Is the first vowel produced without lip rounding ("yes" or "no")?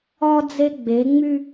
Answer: no